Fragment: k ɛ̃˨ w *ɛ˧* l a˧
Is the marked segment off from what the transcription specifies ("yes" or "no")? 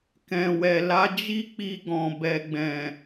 yes